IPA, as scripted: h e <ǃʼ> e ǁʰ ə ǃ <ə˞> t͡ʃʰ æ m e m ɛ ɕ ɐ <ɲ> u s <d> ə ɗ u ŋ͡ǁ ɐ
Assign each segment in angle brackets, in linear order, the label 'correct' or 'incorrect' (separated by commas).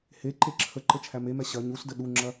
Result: incorrect, incorrect, correct, correct